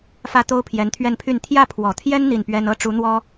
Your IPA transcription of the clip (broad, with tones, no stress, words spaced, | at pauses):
fä˥ t̪o˥ʊ̯pʰjɛ˧˥nt̪ʰɥɛ˥˧npʰy˥˧n t̪ʰjä˥˩pʰwɔ˨˩t̪ʰjɛ˥n n̪i˥˩npɥɛ˥n ɤ˥ʈ͡ʂu˧˥n̪wɔ˥